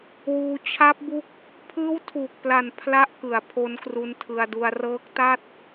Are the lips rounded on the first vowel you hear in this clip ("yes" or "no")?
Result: yes